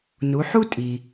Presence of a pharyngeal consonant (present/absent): present